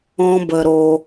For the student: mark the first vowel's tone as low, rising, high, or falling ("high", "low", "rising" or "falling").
high